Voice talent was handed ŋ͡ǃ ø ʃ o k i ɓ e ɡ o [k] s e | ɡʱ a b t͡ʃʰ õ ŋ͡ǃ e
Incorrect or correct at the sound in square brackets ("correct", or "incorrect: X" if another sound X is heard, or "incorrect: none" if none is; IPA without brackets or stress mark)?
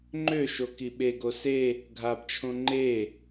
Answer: incorrect: none